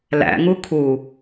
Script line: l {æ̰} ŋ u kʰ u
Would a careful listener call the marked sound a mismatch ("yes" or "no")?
no